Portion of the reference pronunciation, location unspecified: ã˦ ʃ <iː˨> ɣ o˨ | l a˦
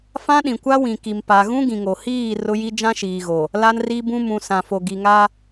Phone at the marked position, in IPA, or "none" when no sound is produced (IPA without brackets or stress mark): iː˨